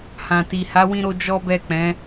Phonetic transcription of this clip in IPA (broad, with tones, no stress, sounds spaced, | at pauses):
h ã˨ t i˨ h a˨˦ w ĩ˦ ɾ o˦ d͡ʒ ɔ˦ b ɛ˦˨ k͡p ɛ̃˨˦